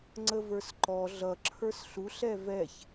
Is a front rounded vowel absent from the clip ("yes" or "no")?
yes